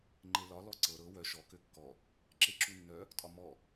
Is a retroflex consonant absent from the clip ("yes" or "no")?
yes